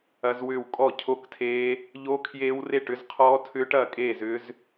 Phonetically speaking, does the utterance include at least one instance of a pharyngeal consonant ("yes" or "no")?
no